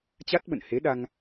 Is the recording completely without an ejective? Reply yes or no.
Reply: yes